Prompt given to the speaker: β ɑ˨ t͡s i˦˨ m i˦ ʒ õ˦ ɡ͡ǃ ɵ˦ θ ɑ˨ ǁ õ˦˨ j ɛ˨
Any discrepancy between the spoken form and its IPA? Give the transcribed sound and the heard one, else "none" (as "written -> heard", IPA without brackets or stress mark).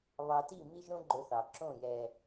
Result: t͡s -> t